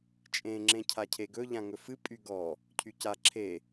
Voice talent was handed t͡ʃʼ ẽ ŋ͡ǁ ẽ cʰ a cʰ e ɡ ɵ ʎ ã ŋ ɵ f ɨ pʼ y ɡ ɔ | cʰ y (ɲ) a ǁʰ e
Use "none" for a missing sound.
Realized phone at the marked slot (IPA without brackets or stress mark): c